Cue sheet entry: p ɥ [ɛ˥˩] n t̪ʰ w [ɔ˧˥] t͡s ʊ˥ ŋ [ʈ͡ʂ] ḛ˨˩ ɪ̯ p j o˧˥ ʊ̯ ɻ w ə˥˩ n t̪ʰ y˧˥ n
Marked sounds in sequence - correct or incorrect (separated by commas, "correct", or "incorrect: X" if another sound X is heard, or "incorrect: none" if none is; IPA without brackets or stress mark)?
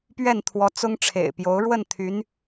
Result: correct, correct, incorrect: ʈ͡ʂʰ